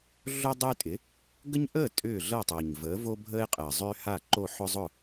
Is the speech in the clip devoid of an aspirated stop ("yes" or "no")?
yes